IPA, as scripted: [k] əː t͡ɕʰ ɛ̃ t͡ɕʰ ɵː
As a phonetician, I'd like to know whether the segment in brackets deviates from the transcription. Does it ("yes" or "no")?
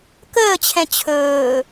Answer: no